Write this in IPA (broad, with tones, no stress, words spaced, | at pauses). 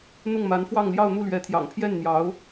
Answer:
n̪ʊ˥˩ŋma˧˥nfwɑ˥˧ŋ ljɑ˥˧ʊ̯n̪u˥˩lɥɛ˧˥t̪ʰjɑ̰˨˩ŋ pʰjɛ˥˩nn̪jɑ˧˥ʊ̯